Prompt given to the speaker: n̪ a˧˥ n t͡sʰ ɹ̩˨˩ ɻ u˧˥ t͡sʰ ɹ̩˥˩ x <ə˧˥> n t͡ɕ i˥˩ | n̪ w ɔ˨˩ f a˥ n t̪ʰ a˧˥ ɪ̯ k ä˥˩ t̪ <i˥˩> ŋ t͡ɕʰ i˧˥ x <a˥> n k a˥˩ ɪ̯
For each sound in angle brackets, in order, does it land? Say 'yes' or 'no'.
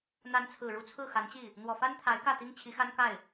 no, no, yes

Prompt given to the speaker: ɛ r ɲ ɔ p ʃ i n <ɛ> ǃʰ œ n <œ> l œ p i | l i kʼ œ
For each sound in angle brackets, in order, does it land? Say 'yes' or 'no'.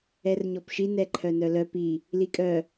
yes, yes

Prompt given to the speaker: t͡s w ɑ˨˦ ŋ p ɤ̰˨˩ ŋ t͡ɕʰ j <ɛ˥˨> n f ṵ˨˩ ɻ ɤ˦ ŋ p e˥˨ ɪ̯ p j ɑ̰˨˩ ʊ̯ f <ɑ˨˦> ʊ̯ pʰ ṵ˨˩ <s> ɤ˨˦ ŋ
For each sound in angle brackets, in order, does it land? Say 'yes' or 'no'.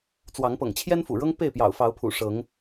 no, yes, no

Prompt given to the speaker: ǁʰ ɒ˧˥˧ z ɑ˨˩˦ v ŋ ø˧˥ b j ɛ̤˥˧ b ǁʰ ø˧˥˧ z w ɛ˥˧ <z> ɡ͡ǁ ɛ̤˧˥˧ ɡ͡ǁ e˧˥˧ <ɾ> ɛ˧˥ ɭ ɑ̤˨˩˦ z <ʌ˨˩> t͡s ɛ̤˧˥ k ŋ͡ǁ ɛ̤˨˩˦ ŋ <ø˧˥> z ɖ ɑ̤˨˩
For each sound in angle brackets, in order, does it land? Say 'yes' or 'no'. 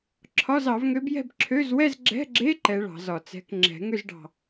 yes, no, no, no

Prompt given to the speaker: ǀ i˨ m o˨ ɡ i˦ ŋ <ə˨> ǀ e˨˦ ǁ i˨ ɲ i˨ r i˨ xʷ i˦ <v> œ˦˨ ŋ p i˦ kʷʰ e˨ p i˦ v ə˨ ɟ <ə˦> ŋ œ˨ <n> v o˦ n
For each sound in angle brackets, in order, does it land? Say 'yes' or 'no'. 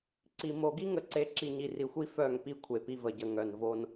yes, no, no, yes

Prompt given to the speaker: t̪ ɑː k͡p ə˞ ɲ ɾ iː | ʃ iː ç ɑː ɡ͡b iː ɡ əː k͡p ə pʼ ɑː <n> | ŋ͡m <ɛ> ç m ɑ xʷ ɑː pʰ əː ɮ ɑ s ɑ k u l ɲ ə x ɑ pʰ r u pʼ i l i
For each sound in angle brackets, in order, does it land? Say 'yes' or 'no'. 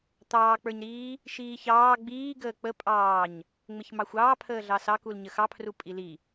no, no

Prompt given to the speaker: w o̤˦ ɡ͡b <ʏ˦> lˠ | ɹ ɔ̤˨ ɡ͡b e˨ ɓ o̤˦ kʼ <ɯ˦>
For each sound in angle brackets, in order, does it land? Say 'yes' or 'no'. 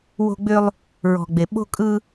yes, yes

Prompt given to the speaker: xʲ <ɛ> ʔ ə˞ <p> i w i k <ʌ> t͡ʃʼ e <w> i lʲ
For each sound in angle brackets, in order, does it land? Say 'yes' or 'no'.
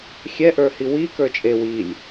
yes, no, no, yes

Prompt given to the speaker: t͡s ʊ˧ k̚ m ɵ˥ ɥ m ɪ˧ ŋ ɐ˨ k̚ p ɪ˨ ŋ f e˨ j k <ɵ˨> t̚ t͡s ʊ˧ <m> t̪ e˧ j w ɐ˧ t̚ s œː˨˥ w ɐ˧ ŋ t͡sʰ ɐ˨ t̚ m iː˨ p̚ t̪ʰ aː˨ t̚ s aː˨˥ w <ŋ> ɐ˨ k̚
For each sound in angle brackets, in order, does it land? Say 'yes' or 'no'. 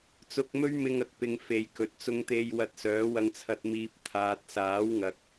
yes, no, yes

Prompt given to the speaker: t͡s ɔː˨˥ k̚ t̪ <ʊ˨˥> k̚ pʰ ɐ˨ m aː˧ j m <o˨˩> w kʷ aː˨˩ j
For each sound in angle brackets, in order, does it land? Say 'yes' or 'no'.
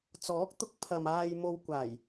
yes, no

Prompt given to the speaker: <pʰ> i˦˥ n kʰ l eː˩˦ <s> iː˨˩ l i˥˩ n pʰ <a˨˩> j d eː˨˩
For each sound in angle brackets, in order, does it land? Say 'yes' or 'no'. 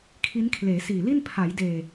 no, yes, no

